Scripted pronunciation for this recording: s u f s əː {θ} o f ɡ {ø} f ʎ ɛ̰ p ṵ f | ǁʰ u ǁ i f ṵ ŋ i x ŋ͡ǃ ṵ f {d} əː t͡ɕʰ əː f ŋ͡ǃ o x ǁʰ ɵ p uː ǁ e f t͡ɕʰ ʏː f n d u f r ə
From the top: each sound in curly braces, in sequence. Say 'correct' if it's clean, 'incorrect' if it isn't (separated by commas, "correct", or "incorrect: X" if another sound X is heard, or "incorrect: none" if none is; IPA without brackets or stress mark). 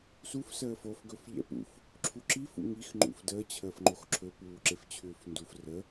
incorrect: f, incorrect: ɵ, correct